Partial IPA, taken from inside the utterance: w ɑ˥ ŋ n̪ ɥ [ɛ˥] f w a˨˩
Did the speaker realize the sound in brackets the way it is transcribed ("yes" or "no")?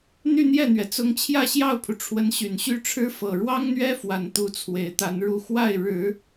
yes